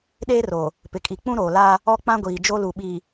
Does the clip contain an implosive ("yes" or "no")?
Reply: yes